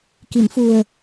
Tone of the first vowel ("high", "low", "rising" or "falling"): low